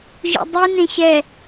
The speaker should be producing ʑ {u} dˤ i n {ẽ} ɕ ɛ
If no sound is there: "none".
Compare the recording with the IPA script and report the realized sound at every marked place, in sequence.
ṵ, ẽ

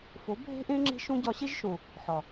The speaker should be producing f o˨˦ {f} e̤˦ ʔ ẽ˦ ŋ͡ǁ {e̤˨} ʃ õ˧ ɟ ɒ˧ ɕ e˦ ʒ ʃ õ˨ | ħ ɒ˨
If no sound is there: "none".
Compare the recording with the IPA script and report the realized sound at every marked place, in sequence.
bʱ, e̤˧

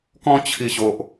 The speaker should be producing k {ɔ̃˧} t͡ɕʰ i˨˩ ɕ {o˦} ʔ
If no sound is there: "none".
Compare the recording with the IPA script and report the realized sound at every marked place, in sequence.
ɔ̃˧, o˨

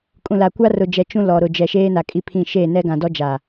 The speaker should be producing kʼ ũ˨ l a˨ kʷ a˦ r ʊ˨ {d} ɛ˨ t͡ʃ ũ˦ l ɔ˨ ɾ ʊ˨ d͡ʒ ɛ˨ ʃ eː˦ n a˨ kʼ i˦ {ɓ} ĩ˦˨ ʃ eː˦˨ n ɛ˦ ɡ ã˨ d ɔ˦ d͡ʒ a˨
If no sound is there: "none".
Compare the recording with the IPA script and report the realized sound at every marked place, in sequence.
d͡ʒ, pʰ

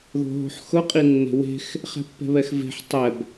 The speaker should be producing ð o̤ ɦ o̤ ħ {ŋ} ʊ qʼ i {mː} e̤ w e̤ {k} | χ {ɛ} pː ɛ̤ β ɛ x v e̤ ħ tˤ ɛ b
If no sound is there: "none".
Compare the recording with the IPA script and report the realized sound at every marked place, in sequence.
x, nː, x, ɛ̤

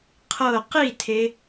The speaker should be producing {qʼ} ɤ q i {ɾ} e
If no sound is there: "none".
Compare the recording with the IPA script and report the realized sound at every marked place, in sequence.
qʰ, tʰ

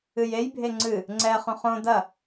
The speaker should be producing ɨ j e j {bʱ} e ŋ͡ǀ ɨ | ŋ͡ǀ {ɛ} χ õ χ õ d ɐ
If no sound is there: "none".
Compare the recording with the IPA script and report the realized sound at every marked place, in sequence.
bʱ, ɛ

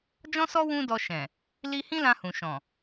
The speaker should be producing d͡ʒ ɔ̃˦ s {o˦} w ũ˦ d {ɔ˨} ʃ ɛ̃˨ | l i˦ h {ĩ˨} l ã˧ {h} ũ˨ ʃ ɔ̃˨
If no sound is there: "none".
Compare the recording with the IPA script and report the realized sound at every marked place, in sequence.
ɔ˦, ɔ˧, ĩ˦, h

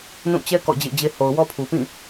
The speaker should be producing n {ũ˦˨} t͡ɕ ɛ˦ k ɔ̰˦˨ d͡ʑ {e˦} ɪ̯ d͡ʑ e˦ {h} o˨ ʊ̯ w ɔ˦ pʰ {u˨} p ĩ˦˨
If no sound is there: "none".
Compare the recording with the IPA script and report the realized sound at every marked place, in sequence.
ũ˦˨, ḛ˦˨, h, u˨

